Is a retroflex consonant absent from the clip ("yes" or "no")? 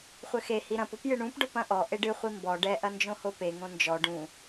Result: no